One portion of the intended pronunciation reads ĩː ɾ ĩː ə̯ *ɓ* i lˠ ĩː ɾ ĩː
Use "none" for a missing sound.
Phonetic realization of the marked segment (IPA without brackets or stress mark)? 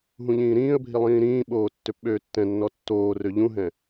bʱ